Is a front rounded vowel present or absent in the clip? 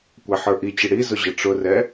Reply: absent